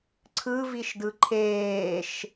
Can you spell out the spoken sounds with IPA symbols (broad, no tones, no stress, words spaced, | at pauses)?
ǀʰɯviʃdɯ ǃʰeːʃ